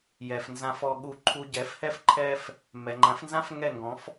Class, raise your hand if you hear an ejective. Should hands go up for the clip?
no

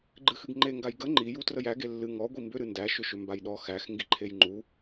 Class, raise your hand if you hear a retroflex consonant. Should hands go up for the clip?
no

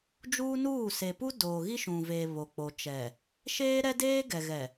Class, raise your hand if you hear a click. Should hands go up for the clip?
no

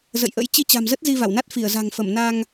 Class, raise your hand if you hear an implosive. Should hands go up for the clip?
no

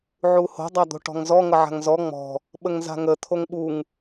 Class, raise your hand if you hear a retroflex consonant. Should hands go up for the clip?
yes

